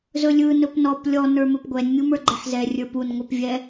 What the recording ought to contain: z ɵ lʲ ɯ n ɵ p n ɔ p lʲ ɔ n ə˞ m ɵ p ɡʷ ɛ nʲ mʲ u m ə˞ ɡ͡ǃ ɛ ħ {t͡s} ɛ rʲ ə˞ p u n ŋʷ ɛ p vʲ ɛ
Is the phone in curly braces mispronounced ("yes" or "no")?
yes